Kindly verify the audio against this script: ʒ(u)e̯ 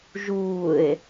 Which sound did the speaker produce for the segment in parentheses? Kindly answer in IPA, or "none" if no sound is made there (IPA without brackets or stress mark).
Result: uː